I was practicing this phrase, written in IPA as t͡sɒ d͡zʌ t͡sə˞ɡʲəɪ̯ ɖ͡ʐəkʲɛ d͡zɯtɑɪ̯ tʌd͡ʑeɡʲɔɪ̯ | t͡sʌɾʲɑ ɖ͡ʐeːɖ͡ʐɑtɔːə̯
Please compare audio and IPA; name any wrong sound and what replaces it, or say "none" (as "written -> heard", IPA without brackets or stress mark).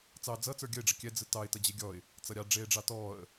ɒ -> ɑ